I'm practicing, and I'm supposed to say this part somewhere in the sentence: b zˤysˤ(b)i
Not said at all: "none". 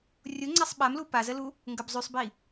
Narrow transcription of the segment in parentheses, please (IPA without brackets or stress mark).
b